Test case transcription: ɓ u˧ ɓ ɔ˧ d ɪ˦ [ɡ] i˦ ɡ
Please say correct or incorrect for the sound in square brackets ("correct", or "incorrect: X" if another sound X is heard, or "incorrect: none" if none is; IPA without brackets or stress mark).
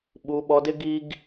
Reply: correct